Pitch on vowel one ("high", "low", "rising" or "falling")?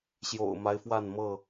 low